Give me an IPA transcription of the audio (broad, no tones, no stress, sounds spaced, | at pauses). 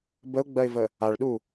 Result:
b ə ʊ̯ ɡ͡b ɜ ɪ̯ v ə | a ɭ ɗ u